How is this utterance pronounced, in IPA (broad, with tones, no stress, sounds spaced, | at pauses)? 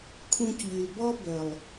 kʰ ũ˧ c ʎ y˨ l b ɔ˦ b œ˨ lˠ